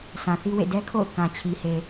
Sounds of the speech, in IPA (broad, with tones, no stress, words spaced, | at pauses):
sã˨θi˦wḛ˦˨ dɛ˦kʰo̰˦˨ʊ̯ kã˨t͡ɕʰi˨ he˨